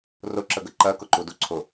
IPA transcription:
r ʊ ǁ ə ɡ ə ǃ ɜ k ʊ ǃ u d u ǀʰ ʊ

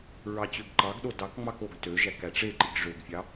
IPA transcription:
ɹ ɑ t͡ɕ ø ɡ ǃ ɑ ɡ ɗ o d ɑ k ŋ͡m ɑ k o ɡ t ø ʒ æ k æ ʈ͡ʂ e ǃ i ɡ ʐ ø ɡ fʲ ɑ

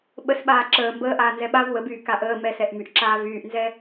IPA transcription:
ɓ ə s ɓ aː ǁ əː m b əː ʔ aː n z ɛ ɓ a v w ə b yː k a ʔ əː m ɛ s ɛ ʔ m y ʔ ǁ aː v yː ʔ n z ɛ

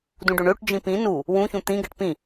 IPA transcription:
d ũ ɖ ø ɳ ø ʈ d͡ʒ ĩ p ĩ n u | w ũ ç ũ t̪ ĩ ɡ ɛ ʈ p ĩ

